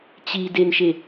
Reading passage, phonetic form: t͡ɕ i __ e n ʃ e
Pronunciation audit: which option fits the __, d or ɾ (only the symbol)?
d